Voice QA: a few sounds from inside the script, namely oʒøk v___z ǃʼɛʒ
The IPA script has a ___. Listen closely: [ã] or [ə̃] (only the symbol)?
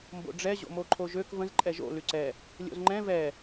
ə̃